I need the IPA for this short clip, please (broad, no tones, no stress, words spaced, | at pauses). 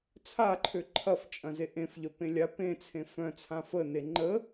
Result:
t͡sʰaǃʰø ǃʰɐf t͡ʃʼɐ̃zeʔẽfʎœ pẽlʲa pẽt͡sʰẽ fœ̃t͡sʰã fəne ŋ͡ǃə